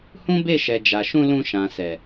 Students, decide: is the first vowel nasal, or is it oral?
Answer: nasal